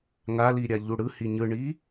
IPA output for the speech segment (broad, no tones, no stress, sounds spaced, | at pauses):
ŋ a l i ɾʲ a ʎ u ɽ ɯ h i ɲ ɯ ɳ i